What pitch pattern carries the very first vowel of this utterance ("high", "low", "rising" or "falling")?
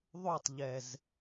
falling